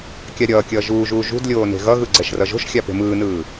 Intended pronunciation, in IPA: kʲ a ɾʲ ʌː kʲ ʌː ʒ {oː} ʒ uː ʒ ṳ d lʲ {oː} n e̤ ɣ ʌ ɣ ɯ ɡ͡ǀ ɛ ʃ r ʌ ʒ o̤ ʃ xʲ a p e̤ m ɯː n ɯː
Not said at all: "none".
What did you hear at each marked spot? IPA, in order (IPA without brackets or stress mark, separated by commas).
uː, oː